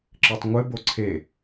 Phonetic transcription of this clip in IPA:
ǁ ɘ tˤ ŋʷ ɘ b o ǀʰ e

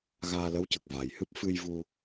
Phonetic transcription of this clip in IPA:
ɣ aː˧ l ə˧˥ w c ə˨˩ k̚ v a˨˩ j h ɨ˦˥ p̚ f ɨ˧ j v u˧

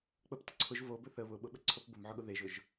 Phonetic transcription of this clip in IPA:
k͡p ə p t ə ǀʰ ʊ ʒ v o b ɵ θ ə β ʊ ɓ ʊ ɓ ə ǀʰ o p b ʊ m ʕ ʊ ɠ ʊ ð e ʒ ʊ ʒ

